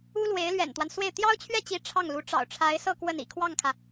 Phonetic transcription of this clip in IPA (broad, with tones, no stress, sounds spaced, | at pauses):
u˥ l w e˧˥ ɪ̯ l ɥ ɛ̰˨˩ n t̪ w a˦ n s w e˥˩ ɪ̯ t̪ j ɑ˥ ʊ̯ t͡ɕʰ ɥ ɛ˥˩ t͡ɕ i˧˥ ʈ͡ʂʰ ɑ˥˩ ŋ l u˧˥ ʈ͡ʂ ɑ̰˨˩ ʊ̯ ʈ͡ʂʰ a˧˥ ɪ̯ s ɤ˥˧ k w ə˥˩ n ḭ˨˩ kʰ w ɑ˥˩ ŋ kʰ ä˩